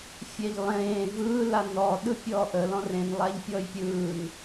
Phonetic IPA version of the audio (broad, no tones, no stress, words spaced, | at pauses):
fʲɛʎlˠẽː vɯːla nɔ ɗɯpʲɔːʔə lɔ̃rẽn lˠaʎpʲɔjpʲɯːn